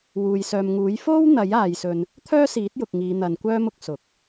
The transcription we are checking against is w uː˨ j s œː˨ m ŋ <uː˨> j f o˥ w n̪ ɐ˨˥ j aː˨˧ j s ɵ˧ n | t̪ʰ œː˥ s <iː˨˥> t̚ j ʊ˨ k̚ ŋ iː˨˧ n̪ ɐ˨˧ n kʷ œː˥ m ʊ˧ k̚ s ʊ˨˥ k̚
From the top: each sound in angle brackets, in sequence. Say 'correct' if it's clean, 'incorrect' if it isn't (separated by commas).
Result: incorrect, correct